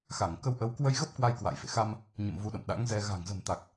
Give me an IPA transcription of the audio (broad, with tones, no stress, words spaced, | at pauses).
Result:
xa˧˩ŋ kə˧wʔə˨˦w kwə˧jɣə˦˥p̚ kwa˧jkwa̰˧˨jfḛ˧˨xa˧m | ɲə̰˧˨m vu˨˦ɗə̰˧˨mɗa̰˧˥ŋzɛ˧ ɣa̤˨˩ŋzə̤˨˩mt̪a˨˩k̚